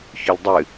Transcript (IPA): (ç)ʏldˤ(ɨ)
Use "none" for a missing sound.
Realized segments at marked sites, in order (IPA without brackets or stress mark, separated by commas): ç, ɨ